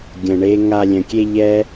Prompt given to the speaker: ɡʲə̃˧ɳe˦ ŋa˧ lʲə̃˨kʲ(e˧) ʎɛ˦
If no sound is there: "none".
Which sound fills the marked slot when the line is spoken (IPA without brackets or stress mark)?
e˧